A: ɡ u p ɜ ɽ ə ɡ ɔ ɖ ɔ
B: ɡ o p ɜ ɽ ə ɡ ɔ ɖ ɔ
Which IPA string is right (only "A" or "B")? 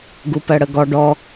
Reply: A